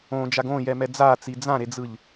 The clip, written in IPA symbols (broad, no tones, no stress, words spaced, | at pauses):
õd͡ʒaɡ õjɛmɛ d͡zat͡si d͡zãɾed͡zɯʎ